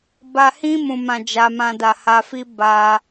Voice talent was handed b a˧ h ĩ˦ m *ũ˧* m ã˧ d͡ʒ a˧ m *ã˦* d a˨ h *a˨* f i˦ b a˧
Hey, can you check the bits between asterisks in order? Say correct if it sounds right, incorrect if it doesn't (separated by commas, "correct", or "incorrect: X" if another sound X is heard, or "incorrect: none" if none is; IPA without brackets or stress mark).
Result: correct, incorrect: ã˧, incorrect: a˧